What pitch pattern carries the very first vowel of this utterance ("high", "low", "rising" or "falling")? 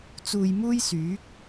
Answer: low